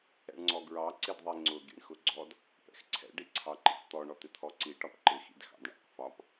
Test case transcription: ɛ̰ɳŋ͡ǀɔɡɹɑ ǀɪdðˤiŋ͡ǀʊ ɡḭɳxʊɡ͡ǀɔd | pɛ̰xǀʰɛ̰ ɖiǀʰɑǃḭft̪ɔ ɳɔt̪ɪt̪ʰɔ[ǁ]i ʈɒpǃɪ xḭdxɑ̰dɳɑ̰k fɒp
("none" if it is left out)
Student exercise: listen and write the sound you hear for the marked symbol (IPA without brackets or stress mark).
ǀ